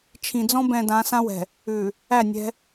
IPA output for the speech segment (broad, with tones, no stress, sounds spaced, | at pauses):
t͡ʃʰ ĩ˨ d͡z ɔ̃˦ b ɛ̃˨ d ã˨˦ s ã˦ w ɛ̤˨ | ʉ˨ | æ˦˨ nʲ ɛ̤˦